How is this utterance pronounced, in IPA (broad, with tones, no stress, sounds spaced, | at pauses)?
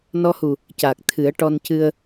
n ɔ˧ h u˨˩ | c aː˨˩ k̚ t̪ʰ ɨ˨˩˦ ə̯ ʈ ɔ˧ n c ɨ˧ ə̯